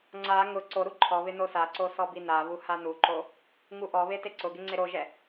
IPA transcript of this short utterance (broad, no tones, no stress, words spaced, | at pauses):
ŋ͡ǀa ŋʊ ǀoɾu ǃʰɔβɪ nosaǀo sɔbinaβu hanuǃo | ŋuʔɔβe teǀʊɡɪ ŋ͡ǀeɾoʒɛ